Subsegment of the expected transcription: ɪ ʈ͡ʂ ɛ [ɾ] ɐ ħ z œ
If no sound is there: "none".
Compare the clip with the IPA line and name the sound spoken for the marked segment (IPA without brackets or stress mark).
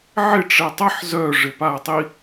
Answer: tˤ